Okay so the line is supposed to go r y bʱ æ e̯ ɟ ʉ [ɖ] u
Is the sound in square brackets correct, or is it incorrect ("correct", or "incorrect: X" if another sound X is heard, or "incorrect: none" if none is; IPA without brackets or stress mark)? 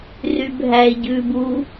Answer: incorrect: b